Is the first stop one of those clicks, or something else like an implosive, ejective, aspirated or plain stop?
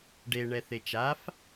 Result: plain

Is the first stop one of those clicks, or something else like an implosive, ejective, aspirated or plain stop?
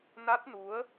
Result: plain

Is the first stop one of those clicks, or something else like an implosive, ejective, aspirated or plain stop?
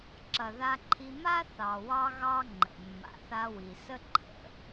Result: click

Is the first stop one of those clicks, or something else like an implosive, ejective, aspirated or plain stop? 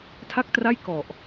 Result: aspirated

